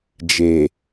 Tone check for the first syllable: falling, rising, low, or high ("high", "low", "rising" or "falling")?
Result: low